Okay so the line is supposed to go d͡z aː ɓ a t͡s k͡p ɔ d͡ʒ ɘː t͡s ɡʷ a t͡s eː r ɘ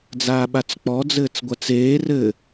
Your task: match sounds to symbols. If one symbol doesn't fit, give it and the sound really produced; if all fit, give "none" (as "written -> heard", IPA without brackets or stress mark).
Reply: d͡ʒ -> d͡z